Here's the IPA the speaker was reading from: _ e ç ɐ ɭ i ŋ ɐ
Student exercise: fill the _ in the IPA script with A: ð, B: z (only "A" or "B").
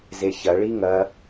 B